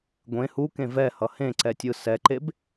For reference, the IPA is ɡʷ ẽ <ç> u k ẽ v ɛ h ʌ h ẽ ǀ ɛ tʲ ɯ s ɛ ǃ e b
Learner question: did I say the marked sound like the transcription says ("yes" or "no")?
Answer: no